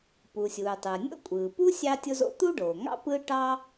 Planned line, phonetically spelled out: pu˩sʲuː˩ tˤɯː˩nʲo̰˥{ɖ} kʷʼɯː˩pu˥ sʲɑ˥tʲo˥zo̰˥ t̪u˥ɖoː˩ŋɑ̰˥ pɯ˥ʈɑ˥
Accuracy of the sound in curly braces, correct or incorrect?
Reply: incorrect